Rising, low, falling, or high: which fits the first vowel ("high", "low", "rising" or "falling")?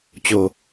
low